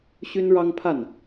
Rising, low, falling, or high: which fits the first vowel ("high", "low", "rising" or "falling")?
high